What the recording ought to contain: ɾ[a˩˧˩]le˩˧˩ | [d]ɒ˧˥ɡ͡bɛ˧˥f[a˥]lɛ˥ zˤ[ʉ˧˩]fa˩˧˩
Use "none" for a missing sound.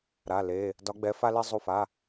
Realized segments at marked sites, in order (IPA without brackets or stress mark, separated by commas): a˩˧˩, d, a˥, u˧˩